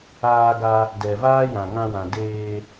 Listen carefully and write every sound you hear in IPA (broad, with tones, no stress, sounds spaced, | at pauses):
aː˧ ɡ a˧ | d ɛ˨ v aː˦ j ã˨ ŋ ã˧ w ã˨ d eː˧